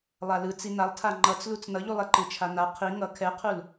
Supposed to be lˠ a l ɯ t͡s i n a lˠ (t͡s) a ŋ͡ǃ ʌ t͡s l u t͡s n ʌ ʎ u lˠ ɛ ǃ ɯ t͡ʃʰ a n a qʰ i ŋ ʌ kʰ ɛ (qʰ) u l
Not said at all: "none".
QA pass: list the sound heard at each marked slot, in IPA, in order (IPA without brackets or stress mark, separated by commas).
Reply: tʰ, qʰ